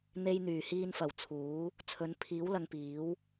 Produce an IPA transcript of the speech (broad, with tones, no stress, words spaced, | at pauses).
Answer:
n̪e˧j n̪yː˨˩hiː˧nfɐ˨˩w t͡sʰuː˨˥ | t͡sʰɵ˨˥n pʰiː˨˥w lɐ˧ŋpiː˨˥w